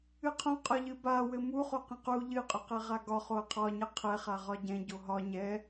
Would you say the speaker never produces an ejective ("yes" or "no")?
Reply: no